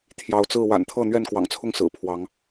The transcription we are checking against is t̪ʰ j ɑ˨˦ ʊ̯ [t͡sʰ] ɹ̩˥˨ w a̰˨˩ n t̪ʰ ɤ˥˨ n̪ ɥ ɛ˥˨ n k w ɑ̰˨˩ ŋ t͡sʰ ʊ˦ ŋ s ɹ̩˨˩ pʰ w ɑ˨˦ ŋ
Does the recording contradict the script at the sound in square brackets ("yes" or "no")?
yes